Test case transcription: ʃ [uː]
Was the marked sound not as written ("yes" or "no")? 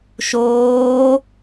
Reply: yes